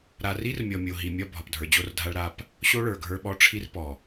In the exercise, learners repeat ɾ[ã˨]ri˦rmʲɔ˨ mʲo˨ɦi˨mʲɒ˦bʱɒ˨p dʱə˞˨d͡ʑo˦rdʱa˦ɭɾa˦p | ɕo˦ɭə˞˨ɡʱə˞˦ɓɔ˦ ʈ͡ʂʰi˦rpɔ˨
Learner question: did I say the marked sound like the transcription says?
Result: no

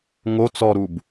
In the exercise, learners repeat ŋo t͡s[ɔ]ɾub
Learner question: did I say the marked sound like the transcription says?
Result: yes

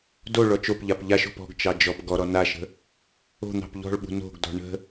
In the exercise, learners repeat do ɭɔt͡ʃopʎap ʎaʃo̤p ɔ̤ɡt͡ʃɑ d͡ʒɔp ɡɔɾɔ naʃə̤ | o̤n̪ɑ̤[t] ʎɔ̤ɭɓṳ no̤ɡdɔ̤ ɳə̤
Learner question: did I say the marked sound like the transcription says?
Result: no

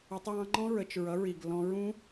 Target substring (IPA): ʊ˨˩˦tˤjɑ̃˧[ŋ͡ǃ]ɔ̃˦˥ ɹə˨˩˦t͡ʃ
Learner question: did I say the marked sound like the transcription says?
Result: yes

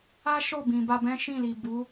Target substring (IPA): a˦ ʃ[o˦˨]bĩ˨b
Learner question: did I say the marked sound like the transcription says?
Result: yes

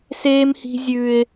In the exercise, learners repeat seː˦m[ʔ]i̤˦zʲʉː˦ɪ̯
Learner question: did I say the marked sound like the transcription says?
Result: no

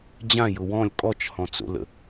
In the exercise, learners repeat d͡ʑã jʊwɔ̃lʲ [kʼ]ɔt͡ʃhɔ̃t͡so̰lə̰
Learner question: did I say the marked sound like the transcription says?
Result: yes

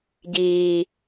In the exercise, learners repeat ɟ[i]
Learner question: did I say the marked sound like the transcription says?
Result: no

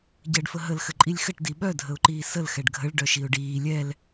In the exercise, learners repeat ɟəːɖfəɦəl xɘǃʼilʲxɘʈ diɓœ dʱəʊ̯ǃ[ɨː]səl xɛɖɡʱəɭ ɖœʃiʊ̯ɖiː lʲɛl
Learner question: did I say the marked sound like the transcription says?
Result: no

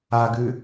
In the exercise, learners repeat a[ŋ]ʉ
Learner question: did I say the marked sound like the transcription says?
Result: no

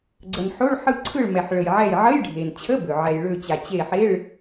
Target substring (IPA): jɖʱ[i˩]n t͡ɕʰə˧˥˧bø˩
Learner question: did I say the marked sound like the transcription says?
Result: no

